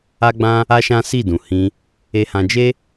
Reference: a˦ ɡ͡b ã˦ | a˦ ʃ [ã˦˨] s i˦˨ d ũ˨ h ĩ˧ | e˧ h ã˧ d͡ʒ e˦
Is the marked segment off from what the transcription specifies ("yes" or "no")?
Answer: yes